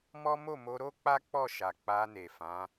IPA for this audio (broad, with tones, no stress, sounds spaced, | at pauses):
m ɔ˦ m o˦˨ m o˧ ɾ o˦ k͡p a˦ k͡p ɔ˦˨ ʃ a˨ k͡p a˧ n e˨ f ã˨˦